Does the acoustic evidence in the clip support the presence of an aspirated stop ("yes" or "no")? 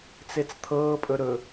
yes